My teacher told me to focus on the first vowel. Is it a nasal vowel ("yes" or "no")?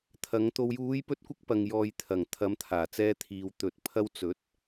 no